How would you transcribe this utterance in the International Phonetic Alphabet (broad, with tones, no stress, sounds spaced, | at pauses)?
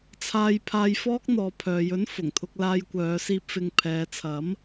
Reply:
t͡sʰ aː˧ j pʰ aː˧ j f ɔː˥ k̚ n̪ ɔː˨˧ pʰ œː˨ j ɵ˨˥ n f ʊ˨˩ ŋ t̪ʰ ʊ˧ k̚ l aː˧ j kʷ œː˨˧ s iː˧ p̚ f ɪ˨ ŋ pʰ ɛː˨˧ t͡sʰ ɐ˨˥ m